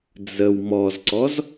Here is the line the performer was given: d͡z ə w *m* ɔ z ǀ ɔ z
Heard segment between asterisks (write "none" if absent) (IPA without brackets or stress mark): m